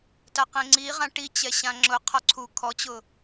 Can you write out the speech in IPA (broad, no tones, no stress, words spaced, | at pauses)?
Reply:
taqẽŋ͡ǀiʁã ʈit͡ɕɛ ɕãŋ͡ǁʊqʰɔ ǀʰu kʰɔt͡ɕʊ